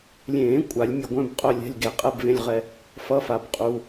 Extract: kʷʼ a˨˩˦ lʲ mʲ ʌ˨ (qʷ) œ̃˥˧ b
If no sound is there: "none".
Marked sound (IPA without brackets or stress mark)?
ɡʷ